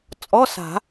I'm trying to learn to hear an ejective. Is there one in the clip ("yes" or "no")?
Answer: yes